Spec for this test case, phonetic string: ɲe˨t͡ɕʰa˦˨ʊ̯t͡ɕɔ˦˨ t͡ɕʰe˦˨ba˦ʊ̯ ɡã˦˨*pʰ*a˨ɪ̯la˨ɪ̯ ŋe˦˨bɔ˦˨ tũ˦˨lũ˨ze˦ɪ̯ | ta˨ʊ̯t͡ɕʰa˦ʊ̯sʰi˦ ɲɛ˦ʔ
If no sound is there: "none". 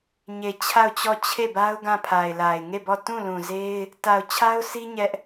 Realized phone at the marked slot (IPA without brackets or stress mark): pʰ